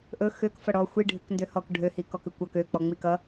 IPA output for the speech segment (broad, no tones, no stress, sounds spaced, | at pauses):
ʔ ɵ x ø k f ʌ ɽ ɔ xʷ i ɖʱ ʏ k n d ø h ɔ k ɖʱ ø h i k ɔ k ʏ kʷ ʌ k ø k͡p ɔ ŋ͡m i k ʌ